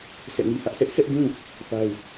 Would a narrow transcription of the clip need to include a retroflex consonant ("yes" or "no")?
no